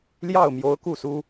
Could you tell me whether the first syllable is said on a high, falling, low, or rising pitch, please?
falling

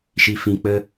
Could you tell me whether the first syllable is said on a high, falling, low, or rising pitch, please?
low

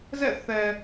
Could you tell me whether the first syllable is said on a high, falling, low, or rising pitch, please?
falling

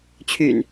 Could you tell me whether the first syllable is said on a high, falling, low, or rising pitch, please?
low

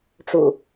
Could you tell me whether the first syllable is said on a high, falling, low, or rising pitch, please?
low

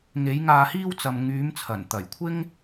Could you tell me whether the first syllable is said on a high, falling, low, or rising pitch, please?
rising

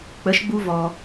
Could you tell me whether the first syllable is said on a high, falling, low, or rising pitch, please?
rising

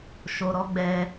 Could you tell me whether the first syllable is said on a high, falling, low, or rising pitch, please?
low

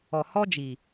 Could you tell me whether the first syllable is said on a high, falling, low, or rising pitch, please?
low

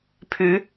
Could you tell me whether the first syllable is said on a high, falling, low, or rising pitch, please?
rising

